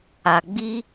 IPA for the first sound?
a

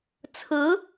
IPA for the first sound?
t͡sʰ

